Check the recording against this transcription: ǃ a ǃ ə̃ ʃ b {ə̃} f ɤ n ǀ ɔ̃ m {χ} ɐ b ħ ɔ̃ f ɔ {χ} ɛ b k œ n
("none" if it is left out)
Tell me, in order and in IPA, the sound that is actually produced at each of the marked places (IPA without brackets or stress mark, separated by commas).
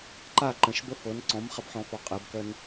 ə, χ, qʼ